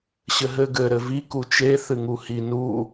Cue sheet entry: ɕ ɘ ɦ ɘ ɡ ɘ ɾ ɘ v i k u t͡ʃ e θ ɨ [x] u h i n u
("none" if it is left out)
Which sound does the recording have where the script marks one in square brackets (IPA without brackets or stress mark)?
ŋ